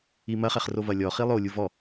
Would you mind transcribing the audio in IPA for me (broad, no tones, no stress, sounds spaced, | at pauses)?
i m ɐ χ ɛ χ r o v ɐ lʲ ɔ χ i lˠ o lʲ u v ɔ